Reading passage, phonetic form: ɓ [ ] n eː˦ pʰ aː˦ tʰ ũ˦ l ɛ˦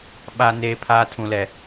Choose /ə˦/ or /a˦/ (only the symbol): a˦